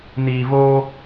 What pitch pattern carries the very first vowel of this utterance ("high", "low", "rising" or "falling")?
low